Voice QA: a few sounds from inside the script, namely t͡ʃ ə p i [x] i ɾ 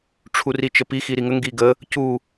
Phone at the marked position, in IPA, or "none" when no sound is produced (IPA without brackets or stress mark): x